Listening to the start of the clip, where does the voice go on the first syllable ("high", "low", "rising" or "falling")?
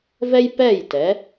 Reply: high